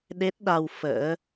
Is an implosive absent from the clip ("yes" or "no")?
no